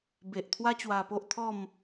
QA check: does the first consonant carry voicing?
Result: yes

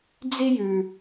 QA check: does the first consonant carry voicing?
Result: yes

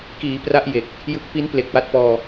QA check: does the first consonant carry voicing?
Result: no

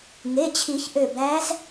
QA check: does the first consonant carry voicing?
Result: yes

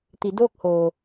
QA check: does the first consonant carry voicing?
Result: no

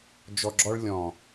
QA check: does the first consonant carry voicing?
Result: yes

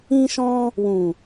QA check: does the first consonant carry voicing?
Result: no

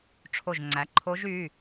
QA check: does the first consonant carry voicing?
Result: no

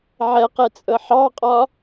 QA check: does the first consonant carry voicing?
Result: yes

